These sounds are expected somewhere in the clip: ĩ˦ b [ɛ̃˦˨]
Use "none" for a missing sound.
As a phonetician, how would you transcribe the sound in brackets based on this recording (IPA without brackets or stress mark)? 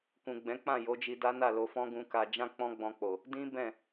ɛ̃˦˨